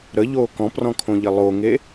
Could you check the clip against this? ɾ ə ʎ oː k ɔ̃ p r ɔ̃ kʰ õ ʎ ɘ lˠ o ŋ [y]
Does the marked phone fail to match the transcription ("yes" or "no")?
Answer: yes